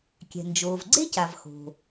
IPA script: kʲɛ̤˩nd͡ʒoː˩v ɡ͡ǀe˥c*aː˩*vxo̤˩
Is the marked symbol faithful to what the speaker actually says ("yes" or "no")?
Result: no